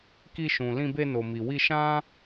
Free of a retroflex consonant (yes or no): yes